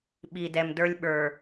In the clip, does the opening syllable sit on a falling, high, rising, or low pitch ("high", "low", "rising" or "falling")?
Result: low